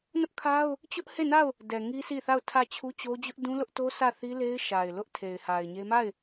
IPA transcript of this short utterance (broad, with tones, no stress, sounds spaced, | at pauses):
n ʊ˦ ʔ kʰ a˦ ʊ̯ | t͡ɕ ʊ˦ ʔ h e˦˨ n a˦˨ ʊ̯ | d ɛ˨ ŋ i˦ s i˦˨ θ a˦˨ ʊ̯ tʰ ä˦˨ t͡ɕʰ u˦ t͡ɕ o˦ d͡ʑ ʊ˦ ʔ d ũ˦ l ʊ˦ ʔ t o˦ s ä˦˨ θ i˦ l e˦ ɪ̯ ʃ a˨ ɪ̯ l ʊ˦ ʔ tʰ e˨ ɪ̯ h a˨ ɪ̯ ɲ e˦ m a˦˨ ɪ̯